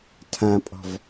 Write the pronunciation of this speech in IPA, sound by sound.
tʰãpʼɔ̤v

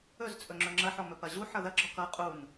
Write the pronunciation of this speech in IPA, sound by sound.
ɵzt͡sʼɵ ŋ͡ǁɵŋ͡ǁɐħɔ mɵpɐʑuħʌ ðɐɡ͡ǁɔ kʌ qʼun

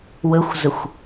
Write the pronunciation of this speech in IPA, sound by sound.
wəxʷzəxʷ

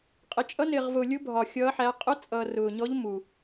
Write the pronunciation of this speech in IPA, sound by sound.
qʼɪ˨ t͡ʃʼʌ˧˥nɪː˨ʁvʊː˨lʲʊ˧˥ bʱɒ˨ xʲʌː˧˥ħæ˧˥ qʼʊ˧˥t͡sʼʌː˨ rʊː˨ɲɔ˧˥ʎ mu˨

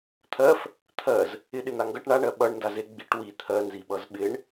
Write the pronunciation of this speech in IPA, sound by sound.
t̪ʰɜf | t̪ʰɜz | ɪ ɗɪn̪aŋɡʌʈ ɳaɳɜ ɓʌɳ ndaze ɡ͡biʈ wi t̪ʰɜnziɓʌz ɓɪɳ

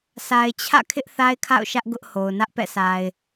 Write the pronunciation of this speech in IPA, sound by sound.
sʰa˨ɪ̯t͡ɕʰä̰˦˨kʰɪ˦ʔ θa˦ɪ̯kʰa̰˦˨ʊ̯ʃä˦ʔ ɡʊ˦ʔho˨ʊ̯ nä˦ʔpɛ̰˦˨sa˨ɪ̯

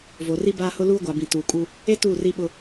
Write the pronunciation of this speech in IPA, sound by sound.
vo˨ri˦ baː˦hʊ˦ luː˦ɡʷa˨bĩ˨ tuː˨kʼu˦ | e˦ tu˦˨ri˦ɓʊ˦

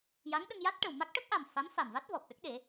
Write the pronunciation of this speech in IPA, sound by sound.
ja˧˥ŋɗə˧ŋ ja˦˥t̚ʈə˨˩w ma˦˥k̚ʈə˦˥k̚ʔa˨˩m fa˧˥mfa˨˩mva˦˥t̚vɔ˨˩p̚ ɗə˦˥k̚ɗe˨˩˦

